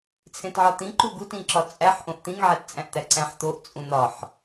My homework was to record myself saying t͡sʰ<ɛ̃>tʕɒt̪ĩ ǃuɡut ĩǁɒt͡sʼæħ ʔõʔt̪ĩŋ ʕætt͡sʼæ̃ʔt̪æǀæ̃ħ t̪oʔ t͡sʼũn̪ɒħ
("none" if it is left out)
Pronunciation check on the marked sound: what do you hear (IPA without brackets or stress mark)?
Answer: ẽ